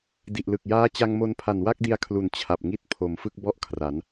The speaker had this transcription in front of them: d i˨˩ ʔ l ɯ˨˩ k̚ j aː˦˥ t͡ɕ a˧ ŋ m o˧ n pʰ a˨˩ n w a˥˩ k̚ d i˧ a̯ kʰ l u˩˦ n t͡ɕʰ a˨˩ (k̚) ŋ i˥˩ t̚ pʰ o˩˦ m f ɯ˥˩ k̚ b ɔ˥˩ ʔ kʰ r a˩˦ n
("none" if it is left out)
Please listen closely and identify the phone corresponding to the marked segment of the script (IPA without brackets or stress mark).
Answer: p̚